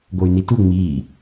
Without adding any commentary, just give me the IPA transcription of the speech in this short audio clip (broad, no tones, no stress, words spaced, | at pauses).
ɡoy̯nitu ŋ͡miː